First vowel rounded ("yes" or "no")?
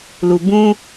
yes